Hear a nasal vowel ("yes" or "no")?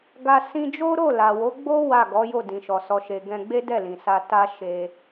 yes